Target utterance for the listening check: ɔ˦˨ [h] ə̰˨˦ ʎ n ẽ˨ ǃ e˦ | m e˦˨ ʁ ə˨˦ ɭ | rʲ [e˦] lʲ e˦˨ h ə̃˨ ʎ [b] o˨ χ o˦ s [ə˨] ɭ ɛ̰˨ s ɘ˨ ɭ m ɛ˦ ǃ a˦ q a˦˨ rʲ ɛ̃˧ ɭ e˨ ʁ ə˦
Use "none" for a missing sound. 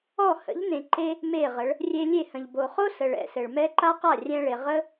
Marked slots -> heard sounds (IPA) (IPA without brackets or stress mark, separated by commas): h, e˧, b, ə˨